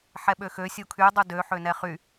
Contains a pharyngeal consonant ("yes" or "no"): yes